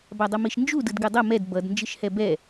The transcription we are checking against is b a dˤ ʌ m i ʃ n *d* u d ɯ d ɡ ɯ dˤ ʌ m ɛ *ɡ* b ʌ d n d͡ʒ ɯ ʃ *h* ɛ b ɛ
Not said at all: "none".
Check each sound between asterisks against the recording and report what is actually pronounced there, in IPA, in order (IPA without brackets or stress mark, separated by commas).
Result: d͡ʒ, d, h